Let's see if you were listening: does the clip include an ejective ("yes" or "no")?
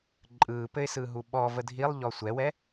yes